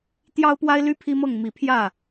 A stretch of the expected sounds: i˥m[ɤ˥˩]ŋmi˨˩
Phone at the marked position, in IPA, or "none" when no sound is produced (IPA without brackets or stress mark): ɤ˥˩